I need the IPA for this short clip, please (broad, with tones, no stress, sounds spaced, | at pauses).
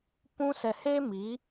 p ũ˧ s ɛ˨ h e˦ m i˨˦